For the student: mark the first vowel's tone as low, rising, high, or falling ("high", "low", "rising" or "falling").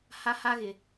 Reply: high